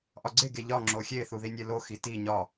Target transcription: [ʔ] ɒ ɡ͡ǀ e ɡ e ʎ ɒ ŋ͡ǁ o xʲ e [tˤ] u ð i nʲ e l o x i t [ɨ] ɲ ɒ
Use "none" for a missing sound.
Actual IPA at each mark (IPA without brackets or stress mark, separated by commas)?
ʔ, θ, i